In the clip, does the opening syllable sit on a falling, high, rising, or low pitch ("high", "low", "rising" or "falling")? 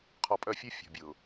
low